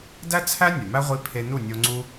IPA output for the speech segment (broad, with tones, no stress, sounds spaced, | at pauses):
d æ˦ t͡sʰ æ˦ nʲ o˨ m æ˦ ʁʷ i˧ pʰ e˧ n u˦˨ nʲ o˧ ŋ͡ǀ u˦